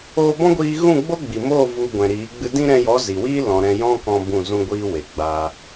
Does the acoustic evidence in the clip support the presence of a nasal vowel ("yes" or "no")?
yes